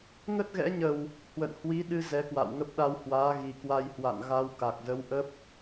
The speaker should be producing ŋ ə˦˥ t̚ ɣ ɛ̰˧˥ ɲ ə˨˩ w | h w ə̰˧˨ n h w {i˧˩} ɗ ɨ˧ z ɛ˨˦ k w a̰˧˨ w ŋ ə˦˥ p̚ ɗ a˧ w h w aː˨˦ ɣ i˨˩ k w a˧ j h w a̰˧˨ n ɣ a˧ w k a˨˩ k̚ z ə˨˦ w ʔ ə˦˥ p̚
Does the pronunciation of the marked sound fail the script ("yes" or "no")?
yes